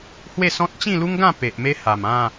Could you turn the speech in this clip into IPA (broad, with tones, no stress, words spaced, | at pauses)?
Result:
hwe˥˧sɔ̃˦t̚ t͡ɕĩ˥˧lu˦ŋɡã˥˧ pe˨ʔme˦ha˨˩m ã˥˧